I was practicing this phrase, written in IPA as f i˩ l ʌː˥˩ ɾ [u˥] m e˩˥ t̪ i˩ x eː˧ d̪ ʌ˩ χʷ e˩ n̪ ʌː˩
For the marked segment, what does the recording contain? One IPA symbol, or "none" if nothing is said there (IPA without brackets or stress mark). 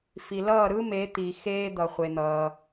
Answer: ɯ˥